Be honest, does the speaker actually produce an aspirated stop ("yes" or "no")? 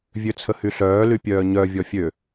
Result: yes